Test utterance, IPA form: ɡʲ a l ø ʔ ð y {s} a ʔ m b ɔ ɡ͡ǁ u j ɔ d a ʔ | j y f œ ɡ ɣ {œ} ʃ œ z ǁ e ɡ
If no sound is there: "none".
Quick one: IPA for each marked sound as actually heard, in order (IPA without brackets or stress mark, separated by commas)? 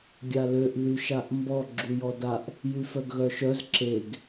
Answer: ʃ, œ